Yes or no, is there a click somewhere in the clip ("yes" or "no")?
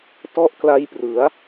no